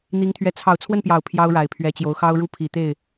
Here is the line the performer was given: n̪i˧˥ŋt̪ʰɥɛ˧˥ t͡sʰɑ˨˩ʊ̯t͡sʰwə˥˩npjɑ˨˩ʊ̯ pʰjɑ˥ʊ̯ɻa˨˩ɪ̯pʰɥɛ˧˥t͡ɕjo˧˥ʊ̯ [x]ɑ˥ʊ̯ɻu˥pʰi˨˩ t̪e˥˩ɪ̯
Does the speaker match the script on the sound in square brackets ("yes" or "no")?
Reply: yes